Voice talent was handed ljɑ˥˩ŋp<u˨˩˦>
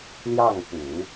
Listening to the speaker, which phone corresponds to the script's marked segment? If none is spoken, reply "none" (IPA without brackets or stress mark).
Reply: u˨˩˦